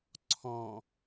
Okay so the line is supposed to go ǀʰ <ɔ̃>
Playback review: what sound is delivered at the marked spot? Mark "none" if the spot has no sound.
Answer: ɔ̃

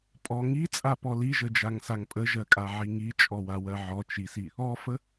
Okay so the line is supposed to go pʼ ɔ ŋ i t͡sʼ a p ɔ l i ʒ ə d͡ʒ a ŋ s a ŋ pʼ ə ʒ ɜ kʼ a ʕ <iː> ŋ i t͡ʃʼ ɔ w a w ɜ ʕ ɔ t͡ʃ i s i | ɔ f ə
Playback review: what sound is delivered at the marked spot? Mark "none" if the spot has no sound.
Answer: i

